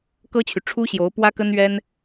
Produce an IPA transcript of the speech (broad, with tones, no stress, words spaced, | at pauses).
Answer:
kɤ˥t͡ɕʰy˨ ʈ͡ʂʰu˥ɕjo˧˥ʊ̯ pwä˥kə˥nɥɛ˥n